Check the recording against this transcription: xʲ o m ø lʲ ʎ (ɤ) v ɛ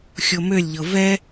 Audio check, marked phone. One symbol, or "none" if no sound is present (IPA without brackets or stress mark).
ɤ